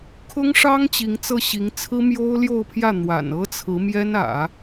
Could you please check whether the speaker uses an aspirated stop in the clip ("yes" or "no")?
yes